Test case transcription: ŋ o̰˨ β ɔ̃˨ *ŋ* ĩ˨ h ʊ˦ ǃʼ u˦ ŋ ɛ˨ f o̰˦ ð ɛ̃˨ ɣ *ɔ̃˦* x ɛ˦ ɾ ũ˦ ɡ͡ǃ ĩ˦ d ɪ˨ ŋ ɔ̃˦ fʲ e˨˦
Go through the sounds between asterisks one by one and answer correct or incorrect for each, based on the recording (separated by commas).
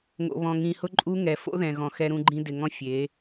correct, incorrect